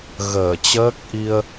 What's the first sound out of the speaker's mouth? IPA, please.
ɣ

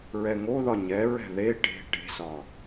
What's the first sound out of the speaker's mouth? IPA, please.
ɹ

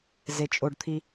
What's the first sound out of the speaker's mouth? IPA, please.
z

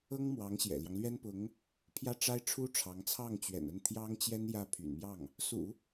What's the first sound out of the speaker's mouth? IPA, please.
ɤ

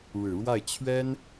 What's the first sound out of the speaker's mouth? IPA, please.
ɻ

